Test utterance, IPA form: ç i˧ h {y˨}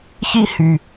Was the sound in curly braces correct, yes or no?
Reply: yes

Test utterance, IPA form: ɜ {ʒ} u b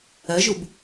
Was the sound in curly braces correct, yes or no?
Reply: yes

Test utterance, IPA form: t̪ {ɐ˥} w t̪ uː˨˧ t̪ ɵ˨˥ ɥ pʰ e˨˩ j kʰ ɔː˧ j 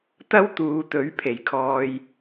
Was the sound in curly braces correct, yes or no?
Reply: yes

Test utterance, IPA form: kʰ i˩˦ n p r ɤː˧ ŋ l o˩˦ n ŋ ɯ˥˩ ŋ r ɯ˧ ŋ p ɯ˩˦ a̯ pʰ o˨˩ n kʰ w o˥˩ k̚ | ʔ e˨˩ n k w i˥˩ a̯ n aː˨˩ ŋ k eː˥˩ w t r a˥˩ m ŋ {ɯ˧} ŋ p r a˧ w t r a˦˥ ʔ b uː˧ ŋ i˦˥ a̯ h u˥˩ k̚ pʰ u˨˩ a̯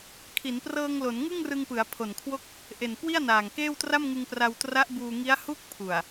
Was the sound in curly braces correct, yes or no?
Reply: yes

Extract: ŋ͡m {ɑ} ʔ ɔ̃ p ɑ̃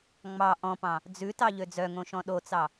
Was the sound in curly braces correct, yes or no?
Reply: yes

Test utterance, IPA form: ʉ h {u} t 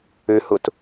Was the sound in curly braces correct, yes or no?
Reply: yes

